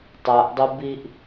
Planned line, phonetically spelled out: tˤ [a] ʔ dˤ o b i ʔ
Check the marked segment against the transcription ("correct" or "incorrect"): correct